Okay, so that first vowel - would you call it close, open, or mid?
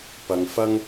open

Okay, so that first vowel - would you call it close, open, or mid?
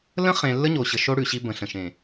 mid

